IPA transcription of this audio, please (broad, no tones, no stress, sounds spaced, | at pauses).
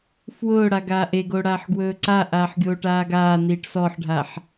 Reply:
f w ʊː ɽ a ɡ aː ʔ e ɡ o ɽ aː ħ ɡ w ɵː ǀ a ʔ aː ħ ɡʲ oː ʈ aː ɡ aː n iː ʈ s ɔ ħ ɖʱ a ħ